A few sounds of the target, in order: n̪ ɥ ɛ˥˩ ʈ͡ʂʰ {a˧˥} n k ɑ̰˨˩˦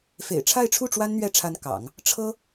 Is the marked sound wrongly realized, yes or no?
no